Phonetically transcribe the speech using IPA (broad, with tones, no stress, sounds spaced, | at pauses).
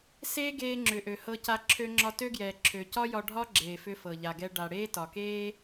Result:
s eː˥ ɡ eː˧ ŋ͡ǁ ʏ˩ ʔ ø˩ h ɤ˧ c a˧ ǁʰ ø˧ ŋ͡ǁ ɒ˧ t ø˥ ɡ j ɛː˩ ǁʰ ø˩ c ɒ˥ j ɒ˧ ɖʱ ɒ˥ ɡ͡ǁ eː˩ f ʏ˧ f ɤ˩ ʎ a˩ ɡ ɛ˧ ɖ a˩ ɽ eː˥ t ɒ˩ k eː˥